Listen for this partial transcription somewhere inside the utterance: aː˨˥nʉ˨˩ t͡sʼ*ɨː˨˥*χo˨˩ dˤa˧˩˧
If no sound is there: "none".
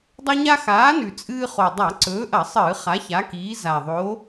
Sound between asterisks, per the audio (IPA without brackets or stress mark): ɨː˦